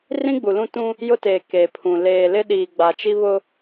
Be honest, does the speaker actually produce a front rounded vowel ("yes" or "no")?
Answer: no